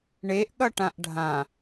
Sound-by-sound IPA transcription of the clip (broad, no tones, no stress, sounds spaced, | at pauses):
ɳ e ʔ ɠ ʌ ʈ ã ʔ ɖʱ ã